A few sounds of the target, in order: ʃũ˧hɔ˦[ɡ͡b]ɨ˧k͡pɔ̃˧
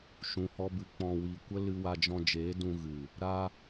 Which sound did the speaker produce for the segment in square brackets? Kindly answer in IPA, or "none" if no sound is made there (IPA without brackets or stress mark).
b